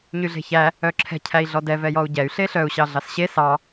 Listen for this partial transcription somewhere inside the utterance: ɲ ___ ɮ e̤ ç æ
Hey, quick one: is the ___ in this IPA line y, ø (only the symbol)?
y